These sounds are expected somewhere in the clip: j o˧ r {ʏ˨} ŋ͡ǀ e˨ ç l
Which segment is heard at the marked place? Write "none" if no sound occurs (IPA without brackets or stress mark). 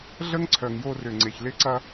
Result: ʏ˨